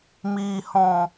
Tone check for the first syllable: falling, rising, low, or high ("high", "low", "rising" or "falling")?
low